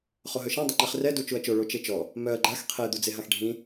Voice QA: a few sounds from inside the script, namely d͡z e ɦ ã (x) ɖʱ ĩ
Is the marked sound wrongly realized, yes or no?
no